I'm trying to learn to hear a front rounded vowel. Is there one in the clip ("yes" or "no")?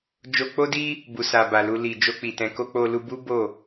no